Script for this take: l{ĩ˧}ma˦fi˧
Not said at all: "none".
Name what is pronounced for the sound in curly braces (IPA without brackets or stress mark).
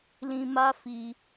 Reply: ĩ˧